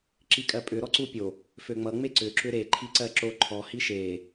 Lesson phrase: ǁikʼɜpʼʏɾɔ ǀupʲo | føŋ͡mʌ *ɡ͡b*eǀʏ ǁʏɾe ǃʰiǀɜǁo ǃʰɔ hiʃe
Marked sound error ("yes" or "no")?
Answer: yes